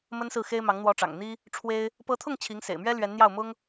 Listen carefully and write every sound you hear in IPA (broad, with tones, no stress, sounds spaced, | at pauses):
m ə˥ n s ɹ̩˥˩ x e˥ ɪ̯ m ɑ˧˥ ŋ n̪ w ɔ˧˥ ʈ͡ʂ ɑ̰˨˩ ŋ n̪ i˥ | ʈ͡ʂʰ w e˥ ɪ̯ | p ɤ˧˥ t̪ʰ ʊ˥˩ ŋ t͡ɕʰ i˧˥ ŋ s ḛ˨˩ ɪ̯ m ɥ ɛ˥ l ɥ ɛ˧˥ n n̪ j ɑ˥˩ ʊ̯ m ʊ˥ ŋ